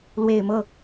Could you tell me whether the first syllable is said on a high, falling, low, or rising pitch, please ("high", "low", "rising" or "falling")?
low